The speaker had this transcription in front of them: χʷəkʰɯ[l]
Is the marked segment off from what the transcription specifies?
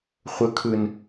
yes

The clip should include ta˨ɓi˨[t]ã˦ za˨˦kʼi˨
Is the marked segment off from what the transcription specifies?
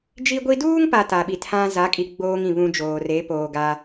yes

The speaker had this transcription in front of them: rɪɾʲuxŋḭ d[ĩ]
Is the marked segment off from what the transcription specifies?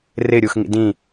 no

